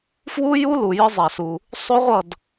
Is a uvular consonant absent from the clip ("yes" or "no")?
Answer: no